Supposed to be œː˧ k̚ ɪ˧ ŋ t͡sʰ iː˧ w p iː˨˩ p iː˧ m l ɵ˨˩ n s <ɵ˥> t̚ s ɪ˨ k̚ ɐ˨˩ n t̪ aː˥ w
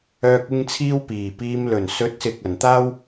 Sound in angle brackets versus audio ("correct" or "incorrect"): incorrect